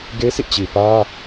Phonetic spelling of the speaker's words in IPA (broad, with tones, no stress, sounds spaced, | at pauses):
ɡ e˦ sʰ ḭ˦˨ t͡ɕ i˨ p ä˦